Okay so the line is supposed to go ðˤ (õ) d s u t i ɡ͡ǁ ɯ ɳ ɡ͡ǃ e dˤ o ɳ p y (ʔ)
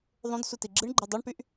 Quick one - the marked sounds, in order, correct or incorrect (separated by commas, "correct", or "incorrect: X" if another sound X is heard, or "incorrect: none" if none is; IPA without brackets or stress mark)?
correct, correct